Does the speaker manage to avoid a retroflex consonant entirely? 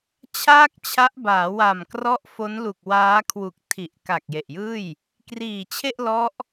yes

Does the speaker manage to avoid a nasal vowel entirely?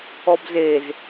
yes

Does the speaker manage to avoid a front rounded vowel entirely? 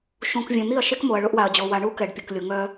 no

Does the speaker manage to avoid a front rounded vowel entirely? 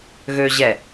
no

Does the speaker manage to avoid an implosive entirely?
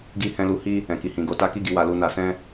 yes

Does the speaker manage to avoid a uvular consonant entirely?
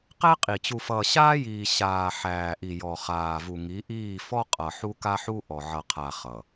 no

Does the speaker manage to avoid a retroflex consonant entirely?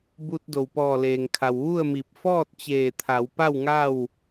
yes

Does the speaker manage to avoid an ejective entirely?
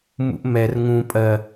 no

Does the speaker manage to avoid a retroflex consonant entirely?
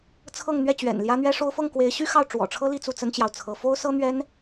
no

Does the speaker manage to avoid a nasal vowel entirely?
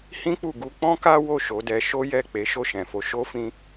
no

